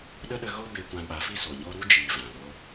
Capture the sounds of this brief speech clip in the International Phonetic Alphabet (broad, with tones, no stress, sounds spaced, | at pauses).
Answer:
ɗ ə˦ ɗ ə˦ ɣ o˦ b e˧ kʷ ã˧ ɓ a˨˦ f i˦ s o˨ ɲ o˦ ɾ u˦ d͡ʒ iː˨ v ã˨ l o˧